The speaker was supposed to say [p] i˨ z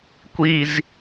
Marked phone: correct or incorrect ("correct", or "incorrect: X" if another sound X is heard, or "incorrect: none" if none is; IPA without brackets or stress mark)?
incorrect: kʷ